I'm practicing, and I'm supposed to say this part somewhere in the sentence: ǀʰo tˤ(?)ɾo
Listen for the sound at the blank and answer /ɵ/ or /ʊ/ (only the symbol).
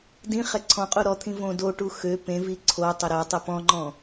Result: ɵ